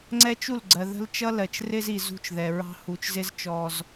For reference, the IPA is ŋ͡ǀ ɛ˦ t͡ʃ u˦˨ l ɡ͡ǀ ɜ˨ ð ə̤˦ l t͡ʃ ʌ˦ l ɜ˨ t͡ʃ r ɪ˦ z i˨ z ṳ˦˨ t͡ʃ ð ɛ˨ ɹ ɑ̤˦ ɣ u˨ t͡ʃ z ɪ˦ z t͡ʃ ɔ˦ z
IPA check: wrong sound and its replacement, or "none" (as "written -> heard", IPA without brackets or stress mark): ɣ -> h